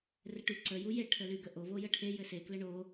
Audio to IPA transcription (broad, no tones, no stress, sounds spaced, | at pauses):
r ɘ ʈ y ǀ ə j u j e ʈʰ ə l y ɡ ə ʔ o v o j ə ʈʰ e j ɘ s e k l ə ɳ o